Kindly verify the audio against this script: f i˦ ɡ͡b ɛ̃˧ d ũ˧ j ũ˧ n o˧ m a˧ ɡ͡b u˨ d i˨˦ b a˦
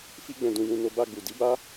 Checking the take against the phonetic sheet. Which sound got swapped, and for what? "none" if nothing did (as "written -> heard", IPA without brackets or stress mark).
m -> b